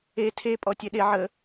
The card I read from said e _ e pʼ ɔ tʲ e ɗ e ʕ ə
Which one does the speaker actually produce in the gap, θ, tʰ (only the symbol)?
tʰ